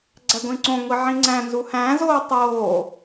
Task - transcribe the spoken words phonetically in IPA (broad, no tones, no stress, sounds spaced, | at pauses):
ɡ͡ǀ æ ɡʷ ĩ ǀ õ ŋʷ i ʕ ĩ ŋ͡ǀ æ̃ n z u h æ̃ z oː tˤ oː